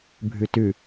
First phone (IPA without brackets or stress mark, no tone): bʱ